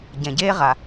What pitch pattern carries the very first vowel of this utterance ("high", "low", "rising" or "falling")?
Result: low